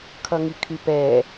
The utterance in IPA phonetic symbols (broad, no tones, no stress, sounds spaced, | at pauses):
kʰ ʌ ŋ i kʰ y p ɛ